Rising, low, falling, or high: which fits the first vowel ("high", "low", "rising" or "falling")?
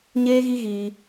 high